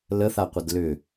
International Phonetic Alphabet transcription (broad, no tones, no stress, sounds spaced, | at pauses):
l ə θ a qʷ ə d l ʏ